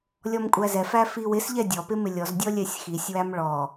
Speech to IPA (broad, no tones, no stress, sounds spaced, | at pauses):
lʲ ɔ m kʷʼ æ z ɛ f æ f i w ɪ s ʎ ɛ dʲ ɔ p ɪ m ɪ lʲ ɔ z dʲ ɔ lʲ ɛ sʲ x i sʲ w æ m ɭ ɔ